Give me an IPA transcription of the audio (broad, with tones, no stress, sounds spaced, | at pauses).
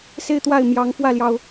s e˥˧ ɪ̯ t̪ w a˥˩ ɪ̯ m j ɑ˧˥ ŋ f w ä˥˩ l j ɑ˩ ʊ̯